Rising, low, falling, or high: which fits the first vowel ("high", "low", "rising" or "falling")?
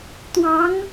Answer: rising